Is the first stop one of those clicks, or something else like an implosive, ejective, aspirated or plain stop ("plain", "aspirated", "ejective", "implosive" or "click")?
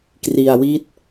plain